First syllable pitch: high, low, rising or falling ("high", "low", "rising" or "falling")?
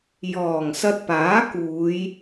low